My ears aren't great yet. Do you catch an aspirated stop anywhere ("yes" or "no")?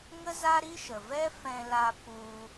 no